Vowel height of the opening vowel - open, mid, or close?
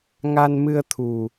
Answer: open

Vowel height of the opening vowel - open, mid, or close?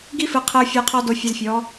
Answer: close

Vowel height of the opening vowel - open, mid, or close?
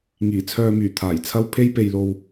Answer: close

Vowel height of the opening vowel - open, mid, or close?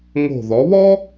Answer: mid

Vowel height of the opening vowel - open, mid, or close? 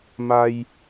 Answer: open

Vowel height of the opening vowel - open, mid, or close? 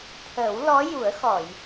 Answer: mid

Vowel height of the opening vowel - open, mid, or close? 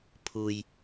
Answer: close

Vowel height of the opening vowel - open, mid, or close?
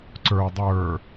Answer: mid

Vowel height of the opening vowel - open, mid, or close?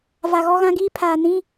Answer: open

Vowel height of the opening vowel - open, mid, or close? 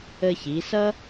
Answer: mid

